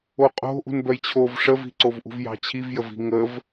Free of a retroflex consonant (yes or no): no